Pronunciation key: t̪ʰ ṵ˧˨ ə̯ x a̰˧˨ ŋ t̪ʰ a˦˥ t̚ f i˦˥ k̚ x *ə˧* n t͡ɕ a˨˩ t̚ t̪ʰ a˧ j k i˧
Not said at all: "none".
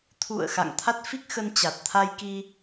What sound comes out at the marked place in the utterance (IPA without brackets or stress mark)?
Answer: ə˧